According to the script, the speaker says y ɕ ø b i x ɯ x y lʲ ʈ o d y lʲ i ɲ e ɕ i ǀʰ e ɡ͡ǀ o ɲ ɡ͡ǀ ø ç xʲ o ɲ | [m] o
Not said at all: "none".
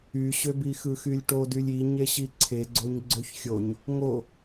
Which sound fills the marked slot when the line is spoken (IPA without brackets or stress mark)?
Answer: ŋ